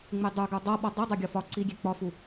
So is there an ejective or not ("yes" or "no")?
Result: no